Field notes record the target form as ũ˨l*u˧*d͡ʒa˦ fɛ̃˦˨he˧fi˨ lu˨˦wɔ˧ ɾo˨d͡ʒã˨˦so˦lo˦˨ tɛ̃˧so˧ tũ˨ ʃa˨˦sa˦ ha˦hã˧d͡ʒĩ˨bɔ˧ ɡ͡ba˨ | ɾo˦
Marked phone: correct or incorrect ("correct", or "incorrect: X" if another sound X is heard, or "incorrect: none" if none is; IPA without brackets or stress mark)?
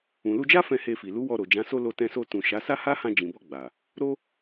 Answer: correct